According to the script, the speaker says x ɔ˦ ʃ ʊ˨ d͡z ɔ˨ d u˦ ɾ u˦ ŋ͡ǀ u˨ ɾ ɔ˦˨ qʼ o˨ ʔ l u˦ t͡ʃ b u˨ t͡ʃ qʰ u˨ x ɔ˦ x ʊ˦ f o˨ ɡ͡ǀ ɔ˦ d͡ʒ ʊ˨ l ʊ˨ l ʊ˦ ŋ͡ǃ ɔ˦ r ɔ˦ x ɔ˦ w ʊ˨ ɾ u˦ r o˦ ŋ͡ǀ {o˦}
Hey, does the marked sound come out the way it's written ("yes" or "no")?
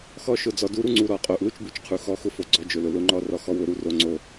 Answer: yes